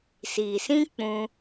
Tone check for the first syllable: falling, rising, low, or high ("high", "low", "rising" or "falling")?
low